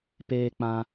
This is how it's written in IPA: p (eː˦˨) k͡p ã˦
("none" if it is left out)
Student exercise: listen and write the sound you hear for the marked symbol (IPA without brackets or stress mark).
eː˦